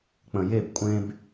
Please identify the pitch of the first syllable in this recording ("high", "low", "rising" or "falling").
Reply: low